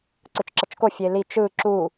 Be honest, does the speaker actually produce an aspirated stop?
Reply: no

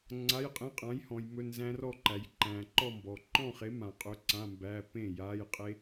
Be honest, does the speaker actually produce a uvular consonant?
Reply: yes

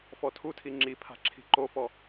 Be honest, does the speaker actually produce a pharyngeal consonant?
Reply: no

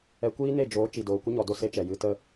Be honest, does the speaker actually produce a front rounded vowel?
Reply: no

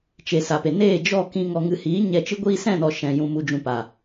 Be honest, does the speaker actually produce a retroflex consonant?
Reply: no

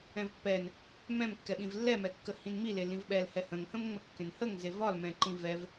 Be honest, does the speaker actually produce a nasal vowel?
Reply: yes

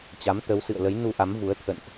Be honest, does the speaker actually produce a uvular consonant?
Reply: no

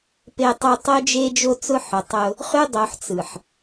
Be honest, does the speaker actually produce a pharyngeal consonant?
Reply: yes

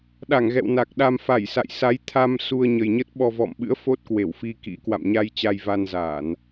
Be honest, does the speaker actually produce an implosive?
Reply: yes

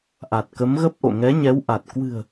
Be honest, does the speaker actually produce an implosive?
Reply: no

